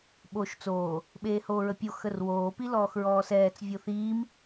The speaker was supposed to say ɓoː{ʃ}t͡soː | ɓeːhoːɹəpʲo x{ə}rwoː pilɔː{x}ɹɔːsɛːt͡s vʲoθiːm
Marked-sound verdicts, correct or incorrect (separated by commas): correct, correct, correct